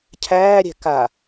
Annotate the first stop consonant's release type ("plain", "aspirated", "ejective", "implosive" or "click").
aspirated